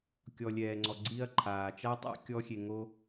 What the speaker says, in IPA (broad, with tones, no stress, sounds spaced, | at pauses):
kʲ ɔ˩ lʲ ɛː˩ ŋ͡ǀ ɔ˩ ɡ͡ǀ i˧ ɐ̯ ǃʰ aː˩ t͡ʃ a˥ tˤ a̰˥ kʲ ɔ˥ xʲ e˧ ŋ o˥